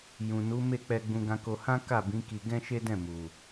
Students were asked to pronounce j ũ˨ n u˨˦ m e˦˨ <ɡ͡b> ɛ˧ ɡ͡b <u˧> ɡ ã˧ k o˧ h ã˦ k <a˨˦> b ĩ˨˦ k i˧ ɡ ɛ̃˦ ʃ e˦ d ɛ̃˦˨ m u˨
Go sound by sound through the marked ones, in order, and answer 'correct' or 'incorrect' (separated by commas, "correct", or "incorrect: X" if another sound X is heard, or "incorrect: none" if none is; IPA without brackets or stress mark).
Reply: incorrect: k͡p, incorrect: ũ˧, incorrect: a˦˨